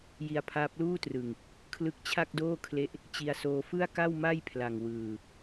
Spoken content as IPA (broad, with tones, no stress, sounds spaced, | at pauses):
j i˧ a̯ pʰ aː˦˥ p̚ l uː˥˩ t r ɯ˨˩ ŋ | kʰ l ɯ˦˥ k̚ t͡ɕʰ a˥˩ k̚ d oː˥˩ kʰ l e˦˥ ʔ | t͡ɕ i˧ a̯ s oː˧ f ɯ˥˩ a̯ k a˥˩ w m a˥˩ j pʰ l a˨˩ ŋ w ɯː˨˩